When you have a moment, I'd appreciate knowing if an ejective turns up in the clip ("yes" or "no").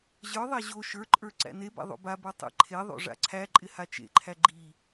yes